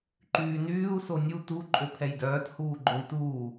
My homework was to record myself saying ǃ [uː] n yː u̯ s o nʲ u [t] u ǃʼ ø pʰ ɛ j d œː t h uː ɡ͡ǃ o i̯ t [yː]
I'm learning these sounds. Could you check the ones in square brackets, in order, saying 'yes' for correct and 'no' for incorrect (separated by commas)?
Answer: no, yes, no